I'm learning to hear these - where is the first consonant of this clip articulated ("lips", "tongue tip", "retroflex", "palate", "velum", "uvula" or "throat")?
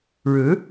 retroflex